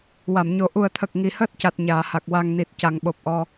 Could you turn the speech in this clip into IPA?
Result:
w a˨˩˨ m ɲ o˨˩˦ ʔ u˨˩ ə̯ t̪ʰ ə˨˩ k̚ ŋ i˨˩˨ h əː˦˥ t̚ c a˨˩ t̚ ɲ aː˨˩˨ h a˨˩ k̚ w a˨˩ ŋ n i˨˩ t̚ c a˨˩˨ ŋ ɓ o˨˩ p̚ ʔ ɔ˧

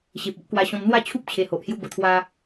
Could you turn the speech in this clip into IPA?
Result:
ɕ e˨ p̚ o˦ ʔ k w a˧ ɕ ɔ̃˧ m n̪ w a˥˧ t͡ɕʰ u˦ p̚ t͡ɕʰ e˧ h o˨ ʔ h j u˦ b ə˧ t̪ʰ w a˦

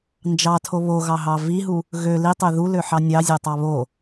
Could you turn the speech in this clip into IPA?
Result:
n d͡ʒ ɑ tʰ o β o ɣ ɑ ɦ ɑ v i ɦ u | ɣ ø l i tˤ ø ð u l ø ħ ɑ nʲ ɑ zʲ ø tˤ ɑ β o

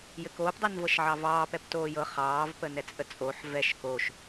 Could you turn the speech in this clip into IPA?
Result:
j ɘ k oː p dˤ i n v ɤ ʃ ʕ ɑ v ɑː p ɛ p t oː j ɤ χ ɑː v p ə n ɛ t͡sʼ ə t͡sʼ o ħ v ɛ ʃ k o ʃ

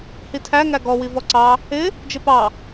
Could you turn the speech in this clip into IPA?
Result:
h i tʰ æ ŋ æ ɡ ɔ w i v ɔ ǀ ɑ | ɪ | d͡ʒ ɪ p ɑ

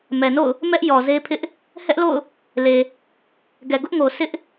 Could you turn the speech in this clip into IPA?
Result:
m ɛ˨ n o̰˦˨ ʊ̯ | m ɛ˦ ʔ j ɔ˨ z e˦ pʰ ɪ˦ ʔ | h ɛ˦ ʔ l o̰˦˨ ʊ̯ | l e˨ | ɡ ɛ˨ ɡ ʊ˦ ʔ ŋ o˨ sʰ ɪ˦ ʔ

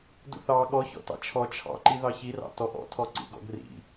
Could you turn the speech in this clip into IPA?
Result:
d ṵ θ ɑ ɠ ɔ ç ɔ̰ t ɑ̰ t͡ʃʰ ɔ t͡ʃʰ ɑ̰ ǃ i ð ɑ ç i r ɑ̰ t ɔ ʔ ɔ̰ tʰ ɔ ǀ ḭ ɡ ɔ̰ ɡ r ḭ

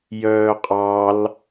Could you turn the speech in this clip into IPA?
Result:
j œː qʼ ɑ l

